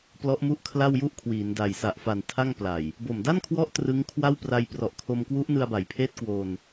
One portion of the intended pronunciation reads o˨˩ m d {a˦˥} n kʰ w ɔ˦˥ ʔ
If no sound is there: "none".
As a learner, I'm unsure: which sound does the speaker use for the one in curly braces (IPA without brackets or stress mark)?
a˥˩